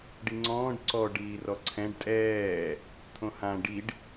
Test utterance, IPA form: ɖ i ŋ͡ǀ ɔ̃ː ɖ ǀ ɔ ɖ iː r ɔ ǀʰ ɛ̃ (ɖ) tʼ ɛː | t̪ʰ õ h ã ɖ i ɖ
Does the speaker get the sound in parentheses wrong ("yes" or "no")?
no